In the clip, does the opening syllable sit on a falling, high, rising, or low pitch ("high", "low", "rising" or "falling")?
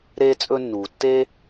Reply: high